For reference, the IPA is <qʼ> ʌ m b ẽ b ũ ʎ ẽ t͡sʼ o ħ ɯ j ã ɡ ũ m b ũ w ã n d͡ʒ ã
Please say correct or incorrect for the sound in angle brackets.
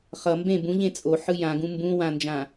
incorrect